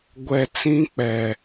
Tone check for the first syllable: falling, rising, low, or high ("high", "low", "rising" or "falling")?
low